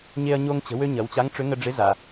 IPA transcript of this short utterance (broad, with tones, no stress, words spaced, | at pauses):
ɲe˧ɐ̯ɲo˧ŋ t͡ɕə̤˩˧wø˧ɲɐ˩˧w t͡ɕa˧˥ŋʈ͡ʂʏ˧˥ ŋə˧ɖ͡ʐɪ˧˥ za˩